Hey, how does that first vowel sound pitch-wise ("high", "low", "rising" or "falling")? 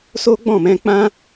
high